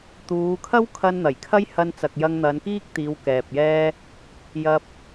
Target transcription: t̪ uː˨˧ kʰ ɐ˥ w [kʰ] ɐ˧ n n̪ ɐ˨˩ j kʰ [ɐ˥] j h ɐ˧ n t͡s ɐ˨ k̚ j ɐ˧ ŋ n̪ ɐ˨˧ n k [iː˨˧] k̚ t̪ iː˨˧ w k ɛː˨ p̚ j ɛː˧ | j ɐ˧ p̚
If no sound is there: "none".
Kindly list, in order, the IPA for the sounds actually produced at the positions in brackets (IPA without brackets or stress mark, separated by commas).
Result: kʰ, ɐ˥, iː˥